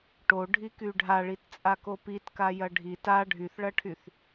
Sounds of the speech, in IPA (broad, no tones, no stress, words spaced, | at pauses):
ʈoɖʱiky ɖʱaɭitt͡sʼako pitkajɐ ɖʱit a ɖʱyθɭɐʈʰyθ